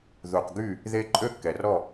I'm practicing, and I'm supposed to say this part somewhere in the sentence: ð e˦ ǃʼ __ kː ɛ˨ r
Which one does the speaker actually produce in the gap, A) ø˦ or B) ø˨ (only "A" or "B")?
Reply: A